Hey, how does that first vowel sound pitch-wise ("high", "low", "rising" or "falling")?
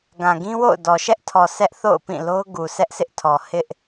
low